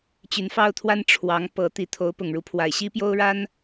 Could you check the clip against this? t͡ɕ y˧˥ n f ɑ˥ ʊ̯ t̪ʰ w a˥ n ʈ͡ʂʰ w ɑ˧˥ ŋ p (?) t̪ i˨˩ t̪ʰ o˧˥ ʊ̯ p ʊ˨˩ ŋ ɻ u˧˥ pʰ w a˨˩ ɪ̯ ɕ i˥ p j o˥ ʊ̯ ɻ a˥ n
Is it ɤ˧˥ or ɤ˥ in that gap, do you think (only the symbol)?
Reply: ɤ˧˥